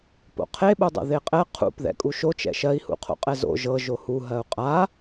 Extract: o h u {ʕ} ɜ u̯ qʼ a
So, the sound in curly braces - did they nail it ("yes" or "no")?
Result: no